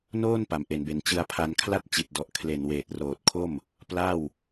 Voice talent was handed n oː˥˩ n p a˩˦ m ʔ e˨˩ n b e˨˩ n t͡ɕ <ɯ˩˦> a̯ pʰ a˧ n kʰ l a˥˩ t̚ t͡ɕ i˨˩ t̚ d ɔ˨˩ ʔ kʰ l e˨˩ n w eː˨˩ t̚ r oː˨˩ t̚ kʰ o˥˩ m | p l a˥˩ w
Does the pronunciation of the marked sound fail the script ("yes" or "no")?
yes